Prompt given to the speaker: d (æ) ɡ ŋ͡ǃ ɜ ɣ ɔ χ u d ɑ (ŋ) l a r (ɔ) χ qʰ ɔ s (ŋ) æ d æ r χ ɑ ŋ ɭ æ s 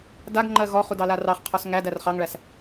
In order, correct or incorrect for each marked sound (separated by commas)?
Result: incorrect, incorrect, incorrect, correct